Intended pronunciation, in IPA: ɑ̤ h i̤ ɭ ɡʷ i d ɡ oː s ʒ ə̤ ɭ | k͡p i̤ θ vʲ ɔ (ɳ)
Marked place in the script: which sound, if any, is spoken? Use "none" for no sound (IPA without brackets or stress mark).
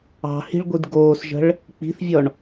ɳ